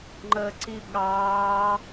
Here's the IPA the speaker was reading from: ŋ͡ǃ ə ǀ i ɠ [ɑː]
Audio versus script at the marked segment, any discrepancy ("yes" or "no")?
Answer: no